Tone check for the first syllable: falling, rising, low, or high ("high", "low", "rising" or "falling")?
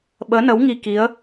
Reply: rising